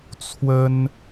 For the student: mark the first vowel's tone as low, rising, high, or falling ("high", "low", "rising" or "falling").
high